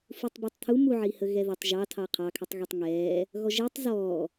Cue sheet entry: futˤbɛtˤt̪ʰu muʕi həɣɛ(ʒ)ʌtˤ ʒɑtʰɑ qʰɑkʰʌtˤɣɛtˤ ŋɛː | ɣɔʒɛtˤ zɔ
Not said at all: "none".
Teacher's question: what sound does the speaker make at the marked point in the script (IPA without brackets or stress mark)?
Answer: ð